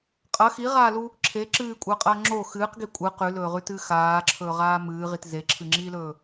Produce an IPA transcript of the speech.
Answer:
qʼ ɐ x i ʁ aː l u | ǁʰ e ǁ ɨː kʷʼ ɐː qʼ ɐː ŋ͡ǁ o x ɨː q ɡ i kʷʼ ɨ q ʉ l ɵː ʁ ʉ t ɨː x aː ǁʰ ɵː ʁ aː m ɨː ʁ i t z e ǁʰ ɨ ŋ͡ǁ iː l ɵː

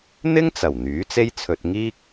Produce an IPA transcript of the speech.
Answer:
n̪ ɪ˥ ŋ t͡s ɐ˨˩ w n̪ yː˨˥ t͡s e˥ j t͡sʰ ɵ˧ t̚ ŋ iː˥ k̚

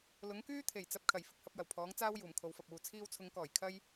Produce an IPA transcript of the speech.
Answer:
l ʊ˨˥ ŋ k yː˥ t̪ʰ e˨˩ j t͡s ɐ˨ p̚ kʰ ɐ˨˩ j f ɪ˨ k̚ h ɐ˧ p̚ j ɐ˨˩ w pʰ ɔː˨˥ ŋ t͡s aː˥ w j uː˨˩ m kʰ o˨˧ w f ɐ˨ p̚ uː˨ t͡sʰ iː˧ w t͡sʰ ʊ˨˧ ŋ k ɔː˨˩ j kʰ ɐ˥ j

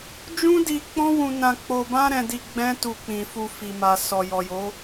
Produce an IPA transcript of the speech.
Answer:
d͡ʒ ũ˦ d i˧ k͡p ɔ̃˦ w ũ˧ n ã˧ k͡p o˧ b ã˦ ɾ ɛ̃˧ d i˧ ɡ͡b ɛ̃˦ t u˧ k͡p ĩ˨ f u˧ f i˨ m a˨ s ɔ˨ j ɔ˨ j o˨˦

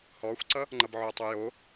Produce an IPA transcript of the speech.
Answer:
h ɔ xʷ ǀ ʌ | ŋ͡ǃ ʌ b ʕ o tˤ o j o

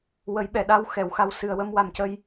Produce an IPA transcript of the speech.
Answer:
w ə˨˩˦ j ɓ ɛ˨˩˨ ɗ a˧ w x ɛ˨˩˨ w x a˧ w s ɨ˨˩ ə̯ w ə˧ m w a˨˩ m c ə˧ j

